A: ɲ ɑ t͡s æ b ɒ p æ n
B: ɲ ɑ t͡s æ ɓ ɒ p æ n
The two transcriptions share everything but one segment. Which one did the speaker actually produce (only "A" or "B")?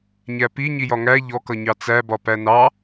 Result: A